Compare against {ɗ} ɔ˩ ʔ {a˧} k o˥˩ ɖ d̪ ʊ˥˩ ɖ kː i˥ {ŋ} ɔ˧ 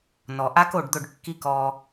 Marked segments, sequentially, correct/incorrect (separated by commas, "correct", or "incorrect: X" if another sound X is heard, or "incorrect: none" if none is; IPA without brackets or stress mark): incorrect: n, incorrect: a˥, incorrect: k